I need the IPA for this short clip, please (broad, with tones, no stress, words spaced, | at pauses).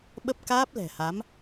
ɓə˦˥p̚kaː˦˥p̚lɛ̤˨˩ha˨˦m